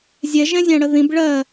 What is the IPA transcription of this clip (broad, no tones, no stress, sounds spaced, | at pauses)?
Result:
zʲ ɛ ʒ ɛ̃ zʲ ã ɽ ə ð ĩ b ɭ ɜ